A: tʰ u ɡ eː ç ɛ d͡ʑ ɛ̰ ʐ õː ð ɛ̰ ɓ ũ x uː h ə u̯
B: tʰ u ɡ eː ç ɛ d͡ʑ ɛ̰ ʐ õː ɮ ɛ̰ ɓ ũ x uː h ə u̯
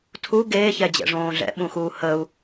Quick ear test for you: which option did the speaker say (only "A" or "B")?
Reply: B